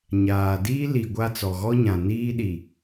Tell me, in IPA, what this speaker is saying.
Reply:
ɲ aː˨ d iː˦ l i˨ ɡʷ a˦ t͡s ɔ˨ ɣ ɔ˦ ɲ ã˨ n iː˦ ɗ i˨

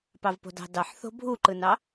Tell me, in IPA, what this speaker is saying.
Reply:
p ɑ v p o̤ d ɑ̤ d ɑ ħ θ o̤ bʱ u ǃ ɯ n ɑ

